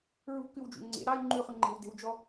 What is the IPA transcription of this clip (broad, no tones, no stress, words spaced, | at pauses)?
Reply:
ɹṳkʉwd͡ʒṵ ŋ͡ǀḛ ɾɑy̯ ŋ͡ǃʉχʉ ŋ͡ǃe̤w de̤wd͡ʒɔ